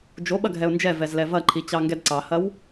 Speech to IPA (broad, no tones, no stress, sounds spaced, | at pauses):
d͡ʒ o ɓ ɐ ɡʱ ɛ ʊ̯ n d͡ʒ ɛ v ɛ z l ɛ v ɐ ǃʰ i t͡ɕ ɑ ŋ ɡ ɛ d ǀ ɑ h ɐ w